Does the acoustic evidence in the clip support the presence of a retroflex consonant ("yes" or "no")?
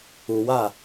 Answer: no